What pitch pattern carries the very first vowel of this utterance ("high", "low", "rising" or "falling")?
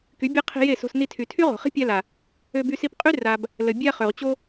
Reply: rising